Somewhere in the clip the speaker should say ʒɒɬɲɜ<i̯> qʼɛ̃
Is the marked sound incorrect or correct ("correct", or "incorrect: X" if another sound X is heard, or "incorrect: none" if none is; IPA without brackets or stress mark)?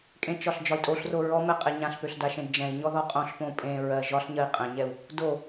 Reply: correct